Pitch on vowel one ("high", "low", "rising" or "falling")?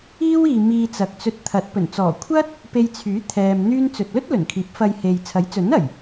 high